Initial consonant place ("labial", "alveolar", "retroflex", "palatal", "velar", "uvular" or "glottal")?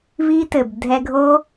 labial